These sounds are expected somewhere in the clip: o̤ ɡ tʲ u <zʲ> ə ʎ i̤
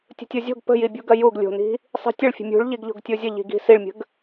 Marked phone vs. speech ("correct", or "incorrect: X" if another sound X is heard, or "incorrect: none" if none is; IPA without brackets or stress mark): correct